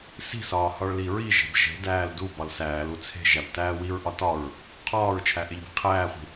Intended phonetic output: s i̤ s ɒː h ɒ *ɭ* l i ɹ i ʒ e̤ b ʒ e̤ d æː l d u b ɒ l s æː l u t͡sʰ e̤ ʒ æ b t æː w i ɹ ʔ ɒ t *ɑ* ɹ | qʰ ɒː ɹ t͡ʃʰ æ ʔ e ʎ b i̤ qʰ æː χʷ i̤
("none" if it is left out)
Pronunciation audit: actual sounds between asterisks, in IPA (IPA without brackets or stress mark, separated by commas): ɭ, ɒ